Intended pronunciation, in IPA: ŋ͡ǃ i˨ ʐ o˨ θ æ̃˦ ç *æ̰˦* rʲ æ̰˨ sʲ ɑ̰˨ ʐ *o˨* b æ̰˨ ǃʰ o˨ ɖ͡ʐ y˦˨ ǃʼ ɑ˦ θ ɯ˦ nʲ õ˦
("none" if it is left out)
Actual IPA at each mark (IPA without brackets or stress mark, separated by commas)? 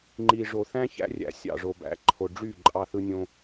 æ̰˦, o˨